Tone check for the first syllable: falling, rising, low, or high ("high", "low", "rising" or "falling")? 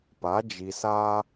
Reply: rising